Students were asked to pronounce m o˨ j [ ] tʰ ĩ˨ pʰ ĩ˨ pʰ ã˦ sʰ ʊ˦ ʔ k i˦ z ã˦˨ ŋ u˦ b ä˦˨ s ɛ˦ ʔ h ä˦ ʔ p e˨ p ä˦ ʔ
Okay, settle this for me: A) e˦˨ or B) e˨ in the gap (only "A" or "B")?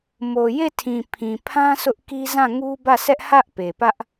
A